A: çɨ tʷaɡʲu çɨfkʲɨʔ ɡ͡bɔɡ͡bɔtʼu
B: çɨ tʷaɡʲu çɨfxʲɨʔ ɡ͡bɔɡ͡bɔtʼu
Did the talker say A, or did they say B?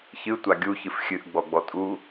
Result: B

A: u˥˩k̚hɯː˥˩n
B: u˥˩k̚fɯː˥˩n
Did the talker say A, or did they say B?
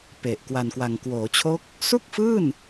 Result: B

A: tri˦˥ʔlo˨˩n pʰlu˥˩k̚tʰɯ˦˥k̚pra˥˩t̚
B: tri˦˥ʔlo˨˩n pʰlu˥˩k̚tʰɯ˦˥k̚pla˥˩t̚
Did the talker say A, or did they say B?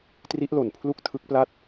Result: B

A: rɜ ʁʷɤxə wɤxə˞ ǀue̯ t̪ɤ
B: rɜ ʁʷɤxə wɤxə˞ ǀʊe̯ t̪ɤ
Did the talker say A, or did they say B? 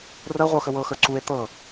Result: A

